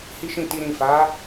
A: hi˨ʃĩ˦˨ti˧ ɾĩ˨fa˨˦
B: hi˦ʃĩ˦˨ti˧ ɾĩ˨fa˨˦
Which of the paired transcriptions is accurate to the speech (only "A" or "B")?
B